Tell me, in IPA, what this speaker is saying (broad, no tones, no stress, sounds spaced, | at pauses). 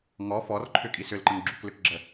ŋ ɔ f ɔ r ǃʰ ʏ kʼ i s ʏ l ǃ ə ŋ ɡ͡ǁ u k l ʏ k ɡ͡ǁ ə